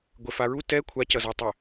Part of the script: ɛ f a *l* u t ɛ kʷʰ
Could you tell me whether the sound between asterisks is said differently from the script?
yes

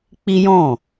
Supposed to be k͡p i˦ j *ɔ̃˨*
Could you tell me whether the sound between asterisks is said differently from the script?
yes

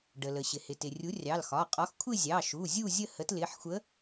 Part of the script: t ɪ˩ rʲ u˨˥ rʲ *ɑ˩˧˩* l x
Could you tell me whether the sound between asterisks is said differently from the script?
no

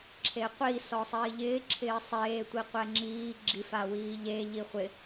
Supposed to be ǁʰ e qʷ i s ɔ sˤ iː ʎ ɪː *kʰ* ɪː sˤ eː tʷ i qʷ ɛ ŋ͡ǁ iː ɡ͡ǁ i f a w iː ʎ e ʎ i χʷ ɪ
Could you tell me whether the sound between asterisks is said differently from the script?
yes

